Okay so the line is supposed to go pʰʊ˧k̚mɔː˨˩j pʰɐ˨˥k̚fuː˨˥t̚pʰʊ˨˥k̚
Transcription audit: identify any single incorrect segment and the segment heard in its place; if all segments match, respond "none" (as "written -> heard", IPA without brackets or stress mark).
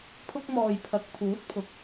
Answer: f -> pʰ